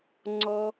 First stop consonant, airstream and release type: click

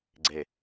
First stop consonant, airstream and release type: click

